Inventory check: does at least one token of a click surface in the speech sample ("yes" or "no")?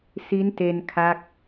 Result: no